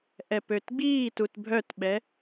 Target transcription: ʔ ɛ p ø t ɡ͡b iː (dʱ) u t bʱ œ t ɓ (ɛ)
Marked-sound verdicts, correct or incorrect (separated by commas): incorrect, correct